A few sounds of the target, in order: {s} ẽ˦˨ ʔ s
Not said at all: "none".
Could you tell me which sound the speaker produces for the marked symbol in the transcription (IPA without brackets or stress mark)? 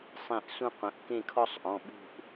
sˤ